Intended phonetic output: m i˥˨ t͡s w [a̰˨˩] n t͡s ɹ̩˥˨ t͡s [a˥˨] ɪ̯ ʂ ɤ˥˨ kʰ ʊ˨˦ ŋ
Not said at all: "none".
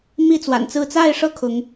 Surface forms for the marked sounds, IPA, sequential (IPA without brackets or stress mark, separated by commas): a̰˨˩, a˥˨